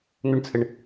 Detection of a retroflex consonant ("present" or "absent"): present